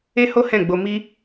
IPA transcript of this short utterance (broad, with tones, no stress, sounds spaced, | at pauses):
e˦ h o˦ h ɛ̃˦˨ ɡ͡b o˧ m i˦